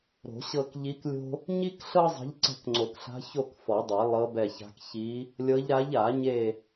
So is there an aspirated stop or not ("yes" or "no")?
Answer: no